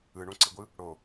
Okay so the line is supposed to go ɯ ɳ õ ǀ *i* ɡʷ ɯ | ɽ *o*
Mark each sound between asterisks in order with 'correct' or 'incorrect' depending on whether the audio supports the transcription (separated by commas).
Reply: correct, correct